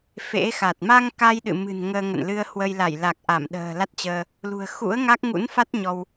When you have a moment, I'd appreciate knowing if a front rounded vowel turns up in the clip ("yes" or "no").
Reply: no